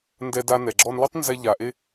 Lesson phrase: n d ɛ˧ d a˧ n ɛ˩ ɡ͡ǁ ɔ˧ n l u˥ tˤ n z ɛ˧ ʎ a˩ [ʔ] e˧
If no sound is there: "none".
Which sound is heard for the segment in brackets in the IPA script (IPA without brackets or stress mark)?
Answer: ʔ